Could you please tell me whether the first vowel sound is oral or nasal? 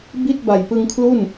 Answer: oral